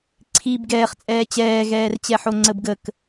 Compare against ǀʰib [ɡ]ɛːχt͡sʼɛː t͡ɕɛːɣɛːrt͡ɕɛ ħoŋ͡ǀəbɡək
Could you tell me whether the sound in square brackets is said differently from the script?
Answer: no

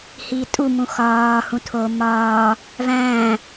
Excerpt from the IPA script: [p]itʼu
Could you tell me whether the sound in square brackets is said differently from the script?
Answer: yes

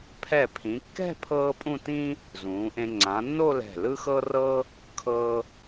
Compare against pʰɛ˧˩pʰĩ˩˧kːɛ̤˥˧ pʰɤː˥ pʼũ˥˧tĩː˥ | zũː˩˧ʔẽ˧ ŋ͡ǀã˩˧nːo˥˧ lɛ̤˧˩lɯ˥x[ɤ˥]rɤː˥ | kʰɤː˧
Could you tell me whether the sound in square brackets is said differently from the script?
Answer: no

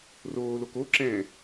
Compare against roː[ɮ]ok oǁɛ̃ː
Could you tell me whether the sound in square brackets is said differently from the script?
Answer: yes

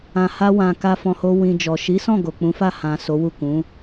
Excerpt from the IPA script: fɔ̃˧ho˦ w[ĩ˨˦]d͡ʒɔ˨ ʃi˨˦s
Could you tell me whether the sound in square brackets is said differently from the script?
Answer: yes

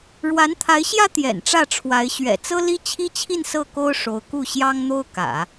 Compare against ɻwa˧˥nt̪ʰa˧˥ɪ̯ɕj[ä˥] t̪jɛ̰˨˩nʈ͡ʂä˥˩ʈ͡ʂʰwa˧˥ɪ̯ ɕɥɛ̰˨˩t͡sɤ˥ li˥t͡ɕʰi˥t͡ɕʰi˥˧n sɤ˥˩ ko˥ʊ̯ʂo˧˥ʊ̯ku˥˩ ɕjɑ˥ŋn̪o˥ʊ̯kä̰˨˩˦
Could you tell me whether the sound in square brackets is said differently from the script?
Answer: no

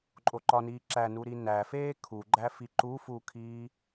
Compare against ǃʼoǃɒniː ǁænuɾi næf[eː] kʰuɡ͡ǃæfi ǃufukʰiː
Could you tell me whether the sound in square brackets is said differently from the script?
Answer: no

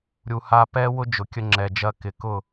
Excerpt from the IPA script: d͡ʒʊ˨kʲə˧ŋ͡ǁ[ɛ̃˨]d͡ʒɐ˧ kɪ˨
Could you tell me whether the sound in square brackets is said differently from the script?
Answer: yes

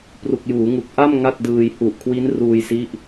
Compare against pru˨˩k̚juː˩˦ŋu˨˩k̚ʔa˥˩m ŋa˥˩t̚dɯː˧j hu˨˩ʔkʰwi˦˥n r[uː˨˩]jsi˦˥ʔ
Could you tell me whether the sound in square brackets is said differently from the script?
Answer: yes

